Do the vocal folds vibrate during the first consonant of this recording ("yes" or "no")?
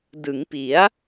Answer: yes